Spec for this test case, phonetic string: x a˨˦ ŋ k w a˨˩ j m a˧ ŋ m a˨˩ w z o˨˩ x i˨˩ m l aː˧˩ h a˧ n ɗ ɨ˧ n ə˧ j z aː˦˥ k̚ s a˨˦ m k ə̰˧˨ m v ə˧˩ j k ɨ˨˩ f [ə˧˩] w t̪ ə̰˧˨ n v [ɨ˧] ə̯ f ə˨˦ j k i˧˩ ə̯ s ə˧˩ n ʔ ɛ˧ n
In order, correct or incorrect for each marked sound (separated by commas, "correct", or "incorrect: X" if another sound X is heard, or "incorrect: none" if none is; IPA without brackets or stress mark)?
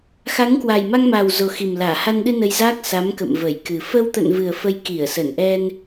incorrect: ə˧, incorrect: ɨ˨˩